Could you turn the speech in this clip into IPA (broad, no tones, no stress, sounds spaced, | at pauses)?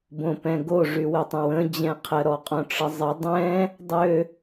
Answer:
b õ p ɛ̃ ɡ o ʐ y w ɪ tˤ ə̃ w ə̃ d͡ʑ ɛ̃ qʰ ə ɾ ɔ qʼ õ ʈ͡ʂ ə zˤ ɪ dˤ ɛ̃ | dˤ ø